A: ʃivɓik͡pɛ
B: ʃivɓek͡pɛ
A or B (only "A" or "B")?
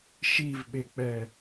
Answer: B